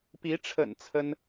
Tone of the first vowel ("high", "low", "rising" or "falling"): rising